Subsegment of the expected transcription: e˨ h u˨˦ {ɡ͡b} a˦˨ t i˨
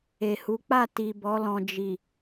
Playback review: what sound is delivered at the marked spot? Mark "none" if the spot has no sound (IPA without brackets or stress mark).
k͡p